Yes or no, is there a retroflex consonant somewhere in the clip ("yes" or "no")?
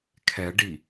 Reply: yes